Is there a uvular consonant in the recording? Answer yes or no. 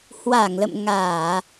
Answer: no